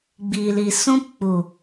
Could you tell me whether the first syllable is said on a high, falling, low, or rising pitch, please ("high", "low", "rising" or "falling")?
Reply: low